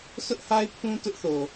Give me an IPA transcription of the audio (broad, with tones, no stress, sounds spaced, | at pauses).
sʰ ʊ˦ ʔ h a˦ ɪ̯ pʰ ũ˦ t ʊ˦ ʔ θ o˨